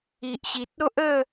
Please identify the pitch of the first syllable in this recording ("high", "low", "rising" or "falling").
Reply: low